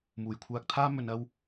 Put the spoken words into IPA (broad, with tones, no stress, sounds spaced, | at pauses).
m uː˨˩ j kʷʰ aː˧ k̚ t̪ʰ aː˥ m ɵ˨ n ɐ˧ w